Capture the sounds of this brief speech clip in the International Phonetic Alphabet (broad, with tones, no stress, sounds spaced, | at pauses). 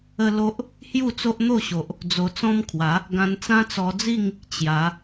ə˦ l o˦ ʔ | h j u˥˧ t͡s o˦ ʔ n̪ o˥˧ ɕ o˨ ʔ | d͡z o˧ t͡s ɔ̃˦ m kʰ w a˨˦ | ɡ ã˧ n t͡s ã˦ t͡s ɔ˧ d͡z i˥˧ ŋ | t͡ɕ j a˨˦